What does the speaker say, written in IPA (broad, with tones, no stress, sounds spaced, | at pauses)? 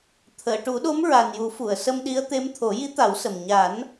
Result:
t̪ʰ əː˨˩˨ ʈ u˨˩˦ ɗ o˧˥ m ɹ a˨˩ n j u˨˩˦ f u˨˩˨ ə̯ s ə˧ m ɗ i˧˥ ə̯ t̪ e˧˥ m t̪ʰ o˨˩˦ j i˧˥ t̪ a˨˩˦ w s ə˨˩ m ɲ a˨˩˦ n